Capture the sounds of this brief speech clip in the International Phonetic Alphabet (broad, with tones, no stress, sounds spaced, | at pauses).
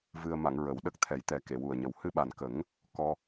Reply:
v ɨ˧ ə̯ m a˨˩˨ ŋ ɹ ə˨˩˦ w ɗ ə˦˥ k̚ t̪ʰ ɛ˨˩˦ j t̪ ɛ˨˩˦ k e˨˩˨ w u˨˩ ə̯ ɲ ə˨˩ w h ɨ˧ ɓ a˨˩ n k ə˨˩˦ ŋ | k ɔ˧